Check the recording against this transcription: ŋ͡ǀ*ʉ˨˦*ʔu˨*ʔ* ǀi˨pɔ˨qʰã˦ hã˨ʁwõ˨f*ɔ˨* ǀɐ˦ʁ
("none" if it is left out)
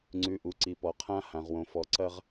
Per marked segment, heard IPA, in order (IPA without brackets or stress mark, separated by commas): ʉ˨˦, none, ɔ˨